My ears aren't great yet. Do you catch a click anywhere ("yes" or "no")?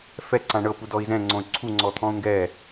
yes